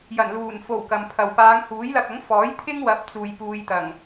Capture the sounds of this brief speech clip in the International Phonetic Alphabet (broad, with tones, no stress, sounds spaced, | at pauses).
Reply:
j ɐ˨˩ n l uː˨˩ n f o˨˩ w k ɐ˨ m pʰ ɐ˨ w p aː˨˧ ŋ h uː˨˥ j l ɐ˧ k̚ ɐ˨˥ ŋ f ɔː˨˥ j t̪ʰ ɪ˥ ŋ w ɐ˨˥ p̚ t͡s uː˨ j p uː˧ j t̪ ɐ˨˩ ŋ